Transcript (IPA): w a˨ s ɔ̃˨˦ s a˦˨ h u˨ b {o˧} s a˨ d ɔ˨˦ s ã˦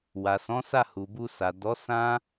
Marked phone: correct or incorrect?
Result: incorrect